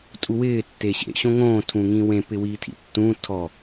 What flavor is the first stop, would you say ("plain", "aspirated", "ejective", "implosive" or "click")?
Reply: ejective